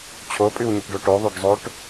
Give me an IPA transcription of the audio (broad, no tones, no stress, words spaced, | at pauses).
t͡ɕʰopʼʉwɲəʈɖo ʈoðˤoɖzˤoʈ